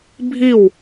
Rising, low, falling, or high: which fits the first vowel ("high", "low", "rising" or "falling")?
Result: falling